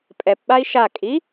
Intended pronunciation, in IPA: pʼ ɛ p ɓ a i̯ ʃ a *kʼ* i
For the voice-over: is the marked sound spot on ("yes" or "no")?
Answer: yes